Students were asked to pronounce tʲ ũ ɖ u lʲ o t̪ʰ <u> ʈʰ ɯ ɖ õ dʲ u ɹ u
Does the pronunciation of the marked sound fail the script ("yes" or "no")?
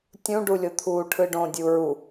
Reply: yes